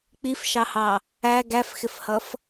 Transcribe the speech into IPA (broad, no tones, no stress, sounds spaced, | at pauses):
k͡p i f ʃ ɑ h ɑ | æ ɡ æ f x ɪ f h ʌ f